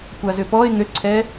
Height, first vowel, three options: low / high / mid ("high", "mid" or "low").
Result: low